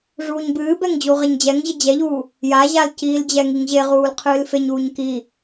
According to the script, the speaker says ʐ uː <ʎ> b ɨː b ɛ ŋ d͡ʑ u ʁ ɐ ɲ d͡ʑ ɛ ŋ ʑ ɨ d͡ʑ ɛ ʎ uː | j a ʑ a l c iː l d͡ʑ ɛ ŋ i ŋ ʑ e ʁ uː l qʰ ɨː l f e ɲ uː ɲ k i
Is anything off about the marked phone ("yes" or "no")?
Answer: yes